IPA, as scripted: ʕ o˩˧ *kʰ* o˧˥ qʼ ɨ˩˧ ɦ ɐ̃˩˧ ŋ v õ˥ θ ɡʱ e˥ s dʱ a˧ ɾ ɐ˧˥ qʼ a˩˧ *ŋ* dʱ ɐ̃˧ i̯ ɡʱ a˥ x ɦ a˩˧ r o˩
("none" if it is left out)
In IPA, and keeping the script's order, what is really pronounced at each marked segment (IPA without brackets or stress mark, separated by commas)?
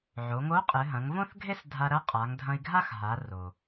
ŋ, ŋ